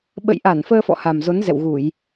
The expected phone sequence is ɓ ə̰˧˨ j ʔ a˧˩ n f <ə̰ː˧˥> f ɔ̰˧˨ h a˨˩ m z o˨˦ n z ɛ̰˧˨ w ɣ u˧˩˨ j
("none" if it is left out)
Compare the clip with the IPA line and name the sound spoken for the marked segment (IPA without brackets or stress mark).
əː˧